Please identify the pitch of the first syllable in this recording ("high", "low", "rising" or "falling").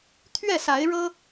falling